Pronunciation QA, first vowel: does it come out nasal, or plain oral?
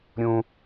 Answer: nasal